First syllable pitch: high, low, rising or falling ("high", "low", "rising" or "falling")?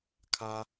high